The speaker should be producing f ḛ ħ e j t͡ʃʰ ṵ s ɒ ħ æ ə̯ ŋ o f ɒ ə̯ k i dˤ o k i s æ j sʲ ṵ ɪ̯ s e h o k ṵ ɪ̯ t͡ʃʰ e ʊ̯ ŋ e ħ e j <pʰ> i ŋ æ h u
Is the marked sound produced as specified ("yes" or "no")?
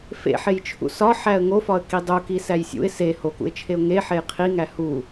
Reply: no